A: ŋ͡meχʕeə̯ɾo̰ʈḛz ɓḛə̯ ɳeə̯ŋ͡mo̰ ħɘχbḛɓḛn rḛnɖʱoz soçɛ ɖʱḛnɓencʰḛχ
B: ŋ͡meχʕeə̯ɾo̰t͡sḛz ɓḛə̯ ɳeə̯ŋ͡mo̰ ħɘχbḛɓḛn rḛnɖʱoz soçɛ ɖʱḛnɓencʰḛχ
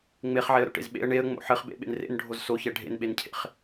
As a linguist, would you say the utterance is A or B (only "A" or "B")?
A